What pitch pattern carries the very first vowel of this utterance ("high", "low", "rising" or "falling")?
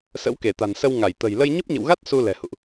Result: rising